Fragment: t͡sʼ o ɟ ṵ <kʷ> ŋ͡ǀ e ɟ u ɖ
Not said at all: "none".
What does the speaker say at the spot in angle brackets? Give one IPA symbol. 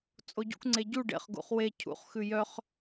kʷ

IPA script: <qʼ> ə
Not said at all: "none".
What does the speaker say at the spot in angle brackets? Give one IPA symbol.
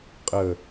qʼ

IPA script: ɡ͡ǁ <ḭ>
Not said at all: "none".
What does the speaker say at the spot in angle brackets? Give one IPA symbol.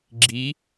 i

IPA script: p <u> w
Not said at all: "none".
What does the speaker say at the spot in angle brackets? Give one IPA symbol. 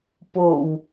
o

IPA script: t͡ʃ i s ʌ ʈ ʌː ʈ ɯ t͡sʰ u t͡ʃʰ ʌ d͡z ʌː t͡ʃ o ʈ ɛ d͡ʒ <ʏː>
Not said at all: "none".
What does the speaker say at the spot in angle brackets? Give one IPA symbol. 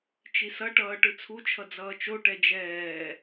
ɛː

